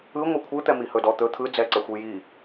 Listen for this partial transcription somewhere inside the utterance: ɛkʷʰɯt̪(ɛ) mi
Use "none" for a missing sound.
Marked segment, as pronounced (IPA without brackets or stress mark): ɛ